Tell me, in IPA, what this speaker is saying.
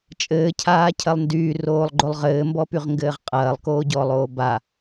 t͡ʃʼ ɘː cʰ aː cʰ ɐ lˠ n d yː r oː lˠ ɡ͡ǃ o lˠ ʁ ɘː m b ɔ p y ʁ ŋ ɡ ɘː ʁ qʼ ɐː lˠ k oː ɟ ɔː lˠ oː b a

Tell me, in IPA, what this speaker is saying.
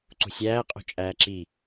ǀ ṳ sʲ æː qʼ o̤ t͡ʃʼ æː ǁ i

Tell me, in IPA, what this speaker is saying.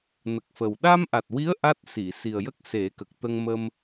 n ə˨˩ k̚ f ə˨˩ w ɗ a˧ m ʔ a˨˩ t̚ w i˧˥ ə̯ ʔ a˦˥ t̚ s i˨˩˨ s i˨˩ ə̯ j ə˦˥ k̚ s e˨˩˦ k ə˨˩ k̚ t̪ ə˧ ŋ m ə˧ m

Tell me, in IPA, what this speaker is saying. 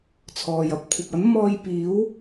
t͡sʰ ɔː˨ j ɐ˥ p̚ kʷʰ ɐ˨ p̚ ɐ˨˥ n m ɔː˧ j p iː˨˥ w

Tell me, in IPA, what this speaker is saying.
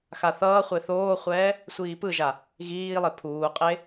x a θ ʌː χʷ e θ oː χʷ ɛː | sʷ iː p ɯ ʒ a | ɣ iː lˠ e pʰ uː qʼ e

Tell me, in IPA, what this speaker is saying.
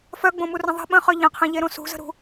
f œ ɡ͡b õ m u r ə̃ ðˤ ə̤ ɓ ə̃ χ œ ʎ ə̃ qʰ ɛ̃ ʎ e ɾ õ s ṳ z ə̤ ɾ ṳ

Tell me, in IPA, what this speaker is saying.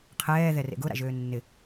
qʰ ɛː ð ɛ r ḛ ɡ ʊ ɾ a̰ ʒ øː nː ɪ

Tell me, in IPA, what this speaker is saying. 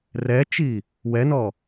r ɛ t͡ʃ i | w ɛ n ɔ

